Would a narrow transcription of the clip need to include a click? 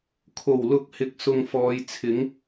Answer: no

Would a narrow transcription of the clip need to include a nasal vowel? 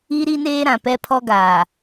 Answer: yes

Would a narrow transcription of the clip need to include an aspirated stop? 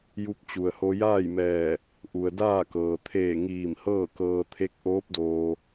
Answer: yes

